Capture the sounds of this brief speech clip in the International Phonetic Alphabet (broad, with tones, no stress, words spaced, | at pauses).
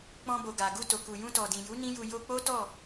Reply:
k͡pɔ̃˧bo˨ ɡa˨ ɡu˧to˨ku˨ jũ˧tɔ˨dĩ˨ ju˨˦ nĩ˦ju˧ jo˧k͡po˦tɔ˦˨